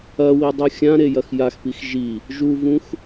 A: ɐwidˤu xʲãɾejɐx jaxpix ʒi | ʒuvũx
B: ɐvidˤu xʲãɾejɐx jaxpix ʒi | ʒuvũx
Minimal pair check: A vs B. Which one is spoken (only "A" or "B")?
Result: A